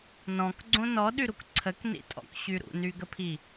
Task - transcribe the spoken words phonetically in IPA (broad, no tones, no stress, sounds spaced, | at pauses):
n ɔ̃ k ɡ͡ǀ õ n ɔ ɗ y ɾ u k ǀʰ ə k n ḭ tʼ ɔ̰ k ɕ y ɾ ṵ n y ɡ ə pʰ i